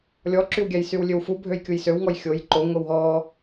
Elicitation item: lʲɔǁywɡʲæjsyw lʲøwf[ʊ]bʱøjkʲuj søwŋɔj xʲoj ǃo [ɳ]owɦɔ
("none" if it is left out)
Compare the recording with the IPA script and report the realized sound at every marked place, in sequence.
u, ŋ

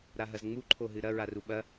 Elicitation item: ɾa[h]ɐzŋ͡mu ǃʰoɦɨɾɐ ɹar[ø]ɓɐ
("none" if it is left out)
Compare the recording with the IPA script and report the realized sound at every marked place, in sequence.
ɦ, u

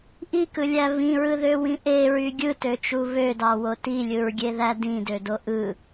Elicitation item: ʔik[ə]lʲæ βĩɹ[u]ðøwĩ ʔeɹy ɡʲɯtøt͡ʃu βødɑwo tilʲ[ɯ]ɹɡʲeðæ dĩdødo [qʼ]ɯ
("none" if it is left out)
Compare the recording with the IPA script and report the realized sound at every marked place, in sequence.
ɯ, ɯ, ɯ, ʔ

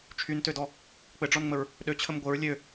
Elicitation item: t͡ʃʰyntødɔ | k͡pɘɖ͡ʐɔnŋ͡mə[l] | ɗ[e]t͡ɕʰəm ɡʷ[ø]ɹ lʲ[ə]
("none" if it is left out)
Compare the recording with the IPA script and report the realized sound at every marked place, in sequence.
ɹ, ø, ɘ, ø

